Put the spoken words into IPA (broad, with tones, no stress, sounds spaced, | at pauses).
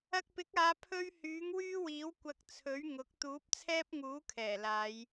ɐ˧ k̚ p ɪ˨˥ k̚ aː˨˧ pʰ ɵ˥ ɥ h yː˨˥ ŋ w yː˥ w iː˨˥ w kʷ ɐ˧ k̚ t͡sʰ ɵ˨˥ ɥ ŋ ʊ˨˥ k̚ t̪ uː˨˥ p̚ t͡sʰ ɛː˥ p̚ ŋ uː˨˥ kʰ ɛː˨˩ l aː˨˧ j